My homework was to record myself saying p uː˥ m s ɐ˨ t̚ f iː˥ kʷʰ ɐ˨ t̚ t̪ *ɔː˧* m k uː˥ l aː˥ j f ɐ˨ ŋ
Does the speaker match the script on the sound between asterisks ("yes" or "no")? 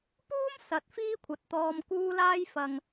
yes